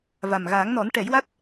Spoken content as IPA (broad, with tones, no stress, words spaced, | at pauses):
va˨˩mɣa˨˩˦ŋnɔ˨˩˦n ʈɛ˨˩˦jwa˦˥t̚